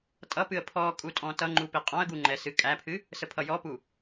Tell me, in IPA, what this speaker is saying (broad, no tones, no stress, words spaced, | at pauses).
tʼʌpɨə̯ pʰɔ kʼutʼɔ̃tʌŋ͡ǃu piqʼɔ̃ə̯ɡu ŋ͡ǃɛsɨkʼæpʰɨ | səpʰʌjɔpu